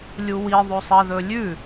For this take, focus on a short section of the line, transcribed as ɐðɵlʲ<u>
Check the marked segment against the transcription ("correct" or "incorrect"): incorrect